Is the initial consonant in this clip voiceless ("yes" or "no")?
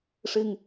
yes